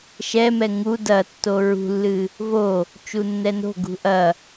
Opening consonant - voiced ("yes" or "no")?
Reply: no